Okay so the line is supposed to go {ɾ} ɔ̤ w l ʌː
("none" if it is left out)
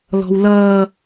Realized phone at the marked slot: l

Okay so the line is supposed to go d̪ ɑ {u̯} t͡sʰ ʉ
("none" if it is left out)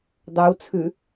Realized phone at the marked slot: u̯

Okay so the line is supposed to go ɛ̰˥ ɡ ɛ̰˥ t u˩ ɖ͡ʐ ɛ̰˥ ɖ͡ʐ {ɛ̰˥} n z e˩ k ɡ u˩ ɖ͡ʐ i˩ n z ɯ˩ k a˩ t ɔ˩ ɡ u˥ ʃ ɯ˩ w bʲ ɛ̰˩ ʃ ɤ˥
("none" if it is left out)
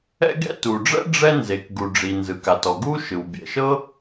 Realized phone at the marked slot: ɛ˥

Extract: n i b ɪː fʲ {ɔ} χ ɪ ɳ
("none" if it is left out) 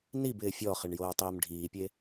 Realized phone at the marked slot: ɔ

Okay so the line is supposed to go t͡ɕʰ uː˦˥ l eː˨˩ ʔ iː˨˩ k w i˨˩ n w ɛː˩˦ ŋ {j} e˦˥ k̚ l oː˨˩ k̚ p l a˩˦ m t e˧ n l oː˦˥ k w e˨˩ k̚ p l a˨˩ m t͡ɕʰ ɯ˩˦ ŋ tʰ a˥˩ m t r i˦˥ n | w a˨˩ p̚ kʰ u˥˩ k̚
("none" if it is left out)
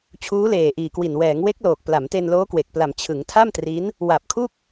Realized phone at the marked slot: w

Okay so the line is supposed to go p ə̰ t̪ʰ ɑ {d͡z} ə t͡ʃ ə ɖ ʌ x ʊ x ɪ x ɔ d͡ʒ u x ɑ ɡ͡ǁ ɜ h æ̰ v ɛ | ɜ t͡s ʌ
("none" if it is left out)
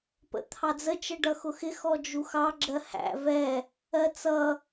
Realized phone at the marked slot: d͡z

